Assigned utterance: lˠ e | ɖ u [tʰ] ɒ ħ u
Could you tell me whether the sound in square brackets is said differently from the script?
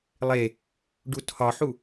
no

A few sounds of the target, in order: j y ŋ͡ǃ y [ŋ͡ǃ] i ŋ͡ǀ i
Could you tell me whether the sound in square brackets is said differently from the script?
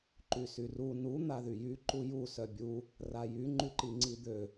yes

